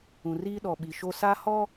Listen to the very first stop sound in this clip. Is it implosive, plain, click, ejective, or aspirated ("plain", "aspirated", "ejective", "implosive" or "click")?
implosive